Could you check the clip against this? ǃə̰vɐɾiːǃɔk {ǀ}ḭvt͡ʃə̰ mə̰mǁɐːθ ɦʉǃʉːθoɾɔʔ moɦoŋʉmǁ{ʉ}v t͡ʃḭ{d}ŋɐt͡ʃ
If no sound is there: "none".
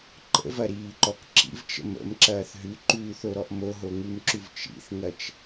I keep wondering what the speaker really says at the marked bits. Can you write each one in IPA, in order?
ǁ, ʉ, θ

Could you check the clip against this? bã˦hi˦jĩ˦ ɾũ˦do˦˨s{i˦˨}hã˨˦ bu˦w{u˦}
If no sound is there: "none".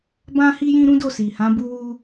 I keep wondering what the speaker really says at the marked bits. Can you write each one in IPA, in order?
i˨, u˦

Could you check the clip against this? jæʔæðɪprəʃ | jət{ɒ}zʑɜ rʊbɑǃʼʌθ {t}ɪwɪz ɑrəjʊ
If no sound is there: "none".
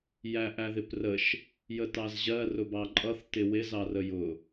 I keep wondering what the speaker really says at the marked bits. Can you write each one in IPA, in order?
ɑ, t

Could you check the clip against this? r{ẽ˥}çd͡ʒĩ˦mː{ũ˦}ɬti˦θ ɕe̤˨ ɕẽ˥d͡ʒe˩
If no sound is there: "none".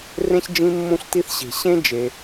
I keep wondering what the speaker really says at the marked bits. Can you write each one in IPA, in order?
ẽ˥, ũ˦

